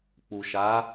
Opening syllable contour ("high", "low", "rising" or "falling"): low